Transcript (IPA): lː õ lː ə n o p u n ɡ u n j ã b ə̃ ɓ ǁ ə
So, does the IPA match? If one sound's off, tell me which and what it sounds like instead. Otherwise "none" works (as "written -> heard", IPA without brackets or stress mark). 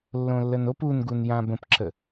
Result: ɓ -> p